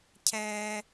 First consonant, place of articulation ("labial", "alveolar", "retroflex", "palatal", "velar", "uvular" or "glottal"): palatal